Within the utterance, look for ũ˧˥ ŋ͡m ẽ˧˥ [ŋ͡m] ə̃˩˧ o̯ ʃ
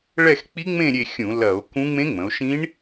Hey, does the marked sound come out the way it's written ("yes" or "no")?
yes